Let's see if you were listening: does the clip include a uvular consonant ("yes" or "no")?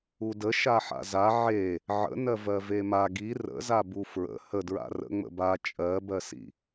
no